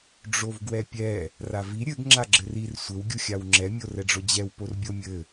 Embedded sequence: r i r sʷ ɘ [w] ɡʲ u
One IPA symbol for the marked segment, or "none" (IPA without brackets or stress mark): w